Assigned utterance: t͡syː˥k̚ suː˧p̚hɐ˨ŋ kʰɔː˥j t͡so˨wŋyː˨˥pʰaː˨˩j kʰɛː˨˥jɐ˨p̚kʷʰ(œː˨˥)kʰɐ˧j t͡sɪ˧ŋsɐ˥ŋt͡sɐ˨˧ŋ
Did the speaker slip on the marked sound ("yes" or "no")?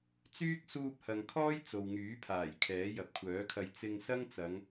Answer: no